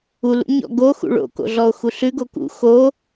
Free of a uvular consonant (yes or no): yes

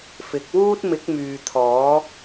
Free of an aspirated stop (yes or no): no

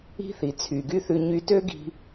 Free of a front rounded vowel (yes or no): no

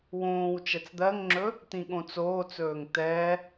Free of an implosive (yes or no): no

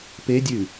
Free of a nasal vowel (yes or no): yes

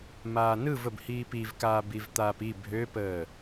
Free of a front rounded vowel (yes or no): no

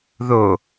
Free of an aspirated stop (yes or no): yes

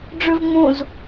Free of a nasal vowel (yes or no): no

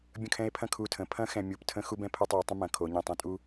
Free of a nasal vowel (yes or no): no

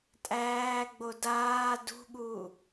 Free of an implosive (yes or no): no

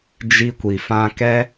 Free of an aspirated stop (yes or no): yes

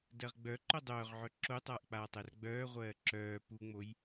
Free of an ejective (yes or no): yes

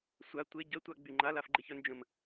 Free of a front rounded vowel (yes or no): no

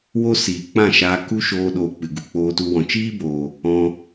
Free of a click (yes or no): yes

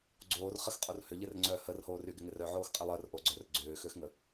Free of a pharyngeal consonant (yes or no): no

